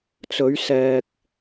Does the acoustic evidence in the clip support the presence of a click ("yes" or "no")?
no